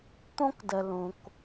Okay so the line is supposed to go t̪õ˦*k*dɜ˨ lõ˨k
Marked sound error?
no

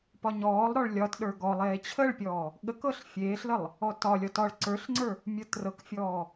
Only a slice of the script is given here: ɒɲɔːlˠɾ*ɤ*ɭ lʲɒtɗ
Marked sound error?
yes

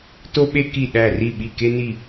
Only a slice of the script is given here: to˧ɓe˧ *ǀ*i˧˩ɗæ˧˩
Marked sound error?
yes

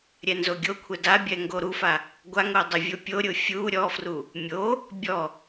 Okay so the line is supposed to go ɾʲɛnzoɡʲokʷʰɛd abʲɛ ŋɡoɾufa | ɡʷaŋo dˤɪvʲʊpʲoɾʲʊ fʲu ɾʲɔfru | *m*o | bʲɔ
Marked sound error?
yes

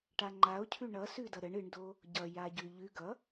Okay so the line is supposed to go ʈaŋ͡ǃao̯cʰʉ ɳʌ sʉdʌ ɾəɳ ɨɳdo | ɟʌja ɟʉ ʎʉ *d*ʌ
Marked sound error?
yes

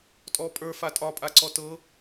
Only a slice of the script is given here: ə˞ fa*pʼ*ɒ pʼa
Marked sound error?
yes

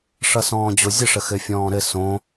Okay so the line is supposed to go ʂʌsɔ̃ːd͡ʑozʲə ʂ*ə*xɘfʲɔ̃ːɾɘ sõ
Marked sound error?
no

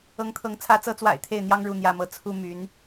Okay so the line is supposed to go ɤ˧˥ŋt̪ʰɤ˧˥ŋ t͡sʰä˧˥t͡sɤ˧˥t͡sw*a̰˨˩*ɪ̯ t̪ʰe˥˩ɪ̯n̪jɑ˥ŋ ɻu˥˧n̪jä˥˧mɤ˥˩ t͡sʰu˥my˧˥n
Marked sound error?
no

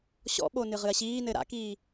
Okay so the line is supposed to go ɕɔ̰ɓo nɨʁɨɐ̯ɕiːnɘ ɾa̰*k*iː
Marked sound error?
no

